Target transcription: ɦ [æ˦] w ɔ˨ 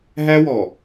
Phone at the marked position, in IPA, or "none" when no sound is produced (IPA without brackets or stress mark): æ˦